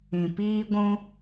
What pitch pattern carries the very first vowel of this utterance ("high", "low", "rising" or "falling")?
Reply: low